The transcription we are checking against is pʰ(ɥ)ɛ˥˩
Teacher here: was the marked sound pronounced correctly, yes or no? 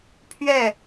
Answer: yes